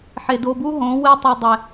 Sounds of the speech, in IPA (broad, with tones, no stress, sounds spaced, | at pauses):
ħ e˧ d o˧ b u˦ ɦ õ˨˦ w e˧ tˤ i˨ dˤ e˨